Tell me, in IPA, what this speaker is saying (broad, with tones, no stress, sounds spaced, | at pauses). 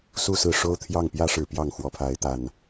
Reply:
s u˥˨ s ɹ̩˥˨ ʂ o˦ ʊ̯ t̪ʰ j ɑ˥˨ ŋ p j ä˦ ʂ ɻ̩˨˩ p j ɑ˥˨ ŋ x w ɔ˨˦ pʰ a˨˦ ɪ̯ t̪ a˨˩ n